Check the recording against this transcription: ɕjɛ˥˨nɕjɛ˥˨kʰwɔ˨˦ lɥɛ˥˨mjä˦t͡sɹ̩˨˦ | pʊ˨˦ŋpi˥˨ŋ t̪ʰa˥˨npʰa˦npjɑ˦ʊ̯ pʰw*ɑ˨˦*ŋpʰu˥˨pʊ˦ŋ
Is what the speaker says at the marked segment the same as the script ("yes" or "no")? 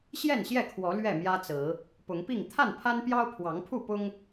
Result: yes